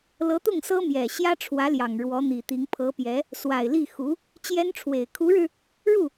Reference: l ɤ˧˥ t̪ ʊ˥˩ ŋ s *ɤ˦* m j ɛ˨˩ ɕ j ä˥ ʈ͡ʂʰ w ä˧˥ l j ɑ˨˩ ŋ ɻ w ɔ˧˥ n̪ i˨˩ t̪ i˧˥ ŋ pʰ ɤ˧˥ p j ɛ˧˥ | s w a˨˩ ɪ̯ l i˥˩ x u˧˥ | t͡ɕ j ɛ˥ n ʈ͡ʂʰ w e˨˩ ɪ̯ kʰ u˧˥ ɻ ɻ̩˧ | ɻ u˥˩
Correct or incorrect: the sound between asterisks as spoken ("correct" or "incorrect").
incorrect